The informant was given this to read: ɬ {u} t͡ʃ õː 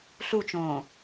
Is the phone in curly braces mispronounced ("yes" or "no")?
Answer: no